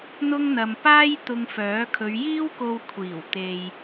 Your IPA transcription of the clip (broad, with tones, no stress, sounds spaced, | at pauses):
n̪ ʊ˥ ŋ n̪ ɐ˧ m p aː˥ j t̪ ʊ˧ ŋ f œː˨˥ kʰ ɵ˨˧ ɥ j iː˥ w k o˧ w kʷʰ iː˨˩ w t̪ e˨ j